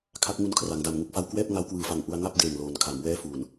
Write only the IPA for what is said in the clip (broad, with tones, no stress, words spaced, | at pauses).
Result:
kʰa˦˥k̚ŋu˧n kʰra˩˦ŋda˨˩mŋu˥˩k̚fa˥˩w kwɛː˥˩p̚ ŋa˦˥wkwɯː˨˩fa˨˩ŋ ʔu˧a̯ŋa˥˩p̚ deː˨˩ŋloː˩˦n kʰa˩˦mwɛː˥˩fuː˨˩n